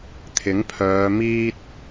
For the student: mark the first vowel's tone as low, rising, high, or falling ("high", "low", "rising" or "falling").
rising